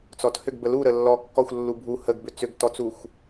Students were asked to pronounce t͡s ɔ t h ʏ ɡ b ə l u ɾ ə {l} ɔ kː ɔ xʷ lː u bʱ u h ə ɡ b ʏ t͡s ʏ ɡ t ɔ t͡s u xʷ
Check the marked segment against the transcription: incorrect: lː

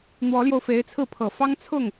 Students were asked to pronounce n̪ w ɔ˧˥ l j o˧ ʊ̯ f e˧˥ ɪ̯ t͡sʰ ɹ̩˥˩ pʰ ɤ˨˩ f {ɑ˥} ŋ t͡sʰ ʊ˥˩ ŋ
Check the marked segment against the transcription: correct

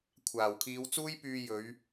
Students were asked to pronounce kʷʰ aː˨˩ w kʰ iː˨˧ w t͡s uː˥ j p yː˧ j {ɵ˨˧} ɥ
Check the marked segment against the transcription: correct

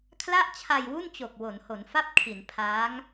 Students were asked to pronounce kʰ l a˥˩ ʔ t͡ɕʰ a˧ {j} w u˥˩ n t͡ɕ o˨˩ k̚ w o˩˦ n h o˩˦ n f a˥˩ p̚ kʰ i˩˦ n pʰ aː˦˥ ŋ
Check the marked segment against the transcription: correct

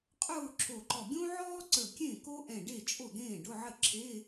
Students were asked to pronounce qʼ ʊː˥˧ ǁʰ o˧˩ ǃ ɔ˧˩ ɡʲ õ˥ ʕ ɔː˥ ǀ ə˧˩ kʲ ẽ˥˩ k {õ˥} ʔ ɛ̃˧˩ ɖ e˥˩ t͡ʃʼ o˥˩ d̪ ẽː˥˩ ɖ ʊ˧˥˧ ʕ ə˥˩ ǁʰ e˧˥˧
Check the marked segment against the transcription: incorrect: o˥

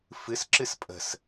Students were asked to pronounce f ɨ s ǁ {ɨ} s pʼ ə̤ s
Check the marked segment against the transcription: correct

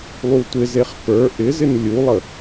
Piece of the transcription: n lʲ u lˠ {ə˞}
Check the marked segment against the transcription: incorrect: ə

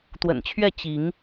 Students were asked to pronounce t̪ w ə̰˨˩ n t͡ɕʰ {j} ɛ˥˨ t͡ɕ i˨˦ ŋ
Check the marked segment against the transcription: incorrect: ɥ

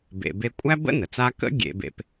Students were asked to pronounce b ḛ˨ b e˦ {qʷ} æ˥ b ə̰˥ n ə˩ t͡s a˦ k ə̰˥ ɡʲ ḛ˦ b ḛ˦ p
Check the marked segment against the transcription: incorrect: kʷʼ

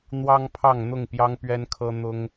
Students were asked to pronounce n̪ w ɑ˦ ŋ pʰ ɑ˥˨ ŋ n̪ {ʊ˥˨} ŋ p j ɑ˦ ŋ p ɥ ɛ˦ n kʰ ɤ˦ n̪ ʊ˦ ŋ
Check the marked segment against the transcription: correct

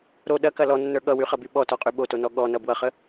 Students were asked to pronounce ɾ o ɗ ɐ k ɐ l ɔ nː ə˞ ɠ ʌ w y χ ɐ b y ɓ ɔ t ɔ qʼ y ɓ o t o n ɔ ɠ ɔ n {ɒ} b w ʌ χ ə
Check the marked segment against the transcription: incorrect: ʌ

